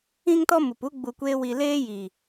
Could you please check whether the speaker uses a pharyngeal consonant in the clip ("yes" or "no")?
no